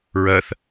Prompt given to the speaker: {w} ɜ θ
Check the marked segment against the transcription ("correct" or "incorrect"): incorrect